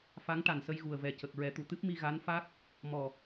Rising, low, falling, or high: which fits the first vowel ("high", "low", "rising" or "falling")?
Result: rising